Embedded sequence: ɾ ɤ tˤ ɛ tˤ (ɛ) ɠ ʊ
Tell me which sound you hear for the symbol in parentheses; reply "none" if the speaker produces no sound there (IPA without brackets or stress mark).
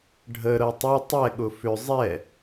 ɛ